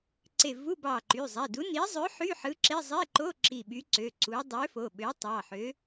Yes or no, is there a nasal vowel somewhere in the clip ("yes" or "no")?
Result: no